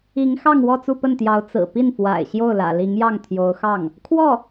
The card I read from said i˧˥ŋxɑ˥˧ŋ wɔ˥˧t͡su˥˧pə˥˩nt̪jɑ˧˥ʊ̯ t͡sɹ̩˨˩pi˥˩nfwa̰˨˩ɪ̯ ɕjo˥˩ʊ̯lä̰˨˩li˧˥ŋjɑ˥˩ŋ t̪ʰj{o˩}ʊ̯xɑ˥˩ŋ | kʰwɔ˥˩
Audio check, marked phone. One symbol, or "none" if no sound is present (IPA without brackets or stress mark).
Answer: o˧˥